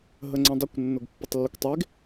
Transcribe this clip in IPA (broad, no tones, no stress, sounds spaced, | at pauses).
ɦ ə ŋ͡ǀ ə̃ dˤ ʊ kʷ nː ʊ ɡ pː ʊ tˤ lː ʊ kʷ tˤ e ɡ